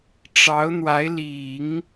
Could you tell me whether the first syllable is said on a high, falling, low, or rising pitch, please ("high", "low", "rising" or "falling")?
rising